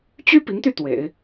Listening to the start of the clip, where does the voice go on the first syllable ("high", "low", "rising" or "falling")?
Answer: high